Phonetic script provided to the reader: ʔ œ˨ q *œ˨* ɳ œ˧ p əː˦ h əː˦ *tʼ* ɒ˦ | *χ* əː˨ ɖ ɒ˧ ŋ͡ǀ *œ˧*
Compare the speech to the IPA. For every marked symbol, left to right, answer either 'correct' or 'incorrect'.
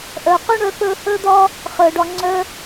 incorrect: œ˦, incorrect: d̪, correct, correct

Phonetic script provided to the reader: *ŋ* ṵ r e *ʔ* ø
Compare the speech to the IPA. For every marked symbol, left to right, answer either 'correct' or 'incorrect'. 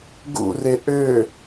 incorrect: ɡ, correct

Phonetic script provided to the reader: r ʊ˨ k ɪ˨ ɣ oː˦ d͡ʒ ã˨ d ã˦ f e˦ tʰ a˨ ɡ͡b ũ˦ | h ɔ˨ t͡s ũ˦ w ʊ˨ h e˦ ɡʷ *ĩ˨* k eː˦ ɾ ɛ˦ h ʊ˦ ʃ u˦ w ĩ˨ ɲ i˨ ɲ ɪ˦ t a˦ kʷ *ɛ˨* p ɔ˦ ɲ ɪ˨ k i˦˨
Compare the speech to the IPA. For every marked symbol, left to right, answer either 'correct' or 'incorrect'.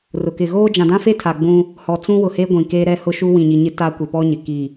correct, incorrect: ɪ˨

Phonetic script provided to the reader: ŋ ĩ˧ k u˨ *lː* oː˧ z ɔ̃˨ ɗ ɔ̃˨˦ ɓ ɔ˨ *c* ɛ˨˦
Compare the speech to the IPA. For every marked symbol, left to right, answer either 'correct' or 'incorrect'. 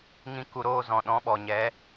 incorrect: ɾ, incorrect: ɲ

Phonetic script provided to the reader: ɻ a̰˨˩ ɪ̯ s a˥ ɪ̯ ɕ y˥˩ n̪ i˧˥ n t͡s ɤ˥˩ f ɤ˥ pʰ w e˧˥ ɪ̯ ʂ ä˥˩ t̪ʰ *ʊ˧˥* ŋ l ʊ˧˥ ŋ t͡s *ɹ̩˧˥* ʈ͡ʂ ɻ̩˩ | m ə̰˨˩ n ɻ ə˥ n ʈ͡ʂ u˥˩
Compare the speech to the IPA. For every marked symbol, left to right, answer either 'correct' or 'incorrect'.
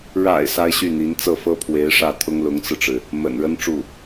incorrect: ʊ˥, incorrect: ɹ̩˧

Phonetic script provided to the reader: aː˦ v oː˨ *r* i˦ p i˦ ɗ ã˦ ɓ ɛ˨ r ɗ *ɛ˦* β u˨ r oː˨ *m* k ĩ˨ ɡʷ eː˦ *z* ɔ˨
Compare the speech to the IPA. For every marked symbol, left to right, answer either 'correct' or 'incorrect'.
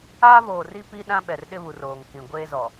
correct, incorrect: ɪ˦, incorrect: ŋ, correct

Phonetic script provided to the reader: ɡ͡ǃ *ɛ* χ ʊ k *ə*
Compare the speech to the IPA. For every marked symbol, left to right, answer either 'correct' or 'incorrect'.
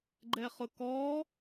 correct, incorrect: ɔ

